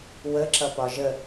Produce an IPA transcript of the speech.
w ə ǁ ʌ p ɒ ʒ ə

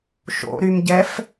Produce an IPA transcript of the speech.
ʃ o̰ ɾ y m ɟ ɛ f

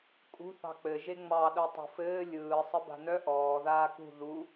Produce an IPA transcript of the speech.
kʼ ṳ θ ɑ̤ k͡p ɘ ʒ e ŋ͡m ɑ ɗ œ tˤ ṳ f ɘː lʲ ɯː sˤ ɘ b a̤ n œ ʔ ɔː ð aː k ṳ ð u

